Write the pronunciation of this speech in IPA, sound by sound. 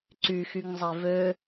ǀ y x y ŋ zˤ e v ø

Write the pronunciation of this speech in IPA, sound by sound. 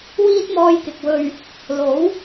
w iː˥ t̚ m ɔː˧ j k ɪ˨ k̚ w ɵ˨ ɥ | l o˨˥ w

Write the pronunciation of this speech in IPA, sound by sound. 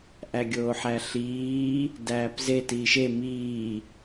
ʔ æ ɡʲ oː ħ æ ɬ iː | d æː p z e t iː ʃ e m iː

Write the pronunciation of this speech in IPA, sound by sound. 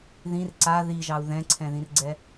ð ĩ r ǀ a ð i ʒ ɑ u̯ ð ɛ̃ ǀʰ ɛ̃ ð ĩ r ɡ͡ǀ ɛ

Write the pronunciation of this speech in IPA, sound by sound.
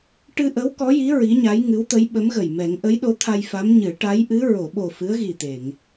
ʈ ɨ˧ ʔ ə˧˥ w k ɔ˧˥ j i˧˥ ɹ i˧˥ ɲ a˧˥ j ŋ ɨ˧˥ w t̪ ə˧˥ j ɓ ə˧˥ m ɣ ə˨˩ j m ɛ˨˩˦ ŋ ʔ ə˧˥ j ɗ o˧˥ t̪ʰ a˧ j f a˧˥ m ɲ ɨ˨˩˦ ʈ a˧˥ j ʔ ɨ˧˥ ɹ o˨˩˨ ɓ o˨˩ f ɨ˧˥ ə̯ ɣ i˨˩ t̪ e˨˩˨ ŋ

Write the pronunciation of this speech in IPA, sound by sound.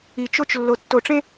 i˨ t͡ʃ o˦ t͡ʃ lː o˨ tː o˨ ʈ͡ʂ ẽ˦

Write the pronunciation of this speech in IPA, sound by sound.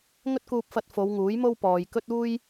ŋ ɵ˥ t̚ k uː˧ p̚ f ɐ˧ t̚ f o˨˧ w ŋ uː˨˥ j m o˥ w p ɔː˨ j k ɵ˥ t̚ uː˥ j

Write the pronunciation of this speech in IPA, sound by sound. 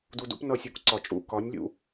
d u˧ d ṵ˦ p n ʌ˦˨ sʲ u˦ k ǀ ɒ˨ t͡ʃʼ ṵ˦˨ k ɒ˨˦ nʲ lʲ ṵ˨

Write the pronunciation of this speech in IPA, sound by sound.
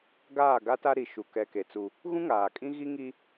ɡ aː˦˨ ɡ a˦ t a˦ ɾ i˨ ʃ u˨ k ɛ˨ k e˨ t͡s u˦ | ɣ ũ˦ ŋ aː˨ kʼ ĩ˦ ɣ i˦ ŋ i˦

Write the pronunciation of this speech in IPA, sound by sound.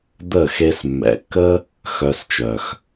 d̪ ə˦˨ x e˧ s mː ɛ̰˨ kː ə˦ | x œ˧ s t͡ʃ œ˨ x

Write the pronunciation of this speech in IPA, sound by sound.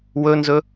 w ɵ n z ɵ

